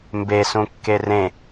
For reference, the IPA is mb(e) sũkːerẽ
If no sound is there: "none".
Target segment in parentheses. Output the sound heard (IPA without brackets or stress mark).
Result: e